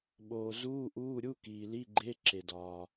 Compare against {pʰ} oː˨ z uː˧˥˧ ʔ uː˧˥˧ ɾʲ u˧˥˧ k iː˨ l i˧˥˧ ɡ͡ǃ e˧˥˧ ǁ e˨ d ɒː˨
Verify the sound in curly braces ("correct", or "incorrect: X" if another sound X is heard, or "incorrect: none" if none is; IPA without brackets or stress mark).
incorrect: ɓ